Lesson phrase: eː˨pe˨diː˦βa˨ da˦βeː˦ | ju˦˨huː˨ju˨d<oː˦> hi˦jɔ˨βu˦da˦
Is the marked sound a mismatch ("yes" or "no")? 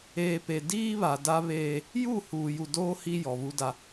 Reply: no